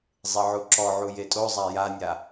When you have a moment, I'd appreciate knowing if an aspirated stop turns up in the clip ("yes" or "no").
no